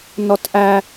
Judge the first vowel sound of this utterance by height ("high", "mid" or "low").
mid